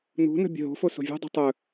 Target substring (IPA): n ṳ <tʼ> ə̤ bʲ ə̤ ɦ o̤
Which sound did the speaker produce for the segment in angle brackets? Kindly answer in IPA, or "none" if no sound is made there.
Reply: n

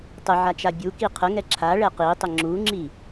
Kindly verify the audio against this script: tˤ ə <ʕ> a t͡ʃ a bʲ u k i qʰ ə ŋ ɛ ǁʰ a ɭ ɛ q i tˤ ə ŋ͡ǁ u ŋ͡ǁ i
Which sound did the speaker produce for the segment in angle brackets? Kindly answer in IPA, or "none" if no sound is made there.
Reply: ʕ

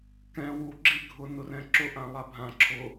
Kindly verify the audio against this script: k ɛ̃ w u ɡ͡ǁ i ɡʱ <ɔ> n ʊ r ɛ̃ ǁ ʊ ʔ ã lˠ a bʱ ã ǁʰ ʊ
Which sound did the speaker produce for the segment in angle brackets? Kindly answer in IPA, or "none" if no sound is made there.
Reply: ʊ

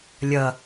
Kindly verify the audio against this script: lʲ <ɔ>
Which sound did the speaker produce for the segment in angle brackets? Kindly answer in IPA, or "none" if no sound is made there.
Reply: ʌ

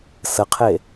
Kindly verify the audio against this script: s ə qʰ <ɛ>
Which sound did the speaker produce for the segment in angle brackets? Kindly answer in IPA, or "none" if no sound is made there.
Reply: e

